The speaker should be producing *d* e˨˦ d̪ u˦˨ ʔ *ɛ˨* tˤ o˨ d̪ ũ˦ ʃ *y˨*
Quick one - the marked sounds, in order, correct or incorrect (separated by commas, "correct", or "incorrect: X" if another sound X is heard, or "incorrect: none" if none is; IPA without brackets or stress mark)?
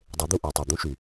incorrect: dˤ, incorrect: ø˨, correct